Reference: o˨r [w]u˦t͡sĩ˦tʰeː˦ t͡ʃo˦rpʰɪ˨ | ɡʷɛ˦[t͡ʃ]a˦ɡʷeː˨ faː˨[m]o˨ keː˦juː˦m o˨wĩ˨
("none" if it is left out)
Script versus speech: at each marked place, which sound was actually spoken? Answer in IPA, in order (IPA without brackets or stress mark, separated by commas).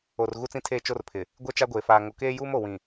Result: ɣ, t͡ʃ, ŋ